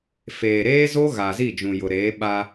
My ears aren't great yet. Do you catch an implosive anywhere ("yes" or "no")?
yes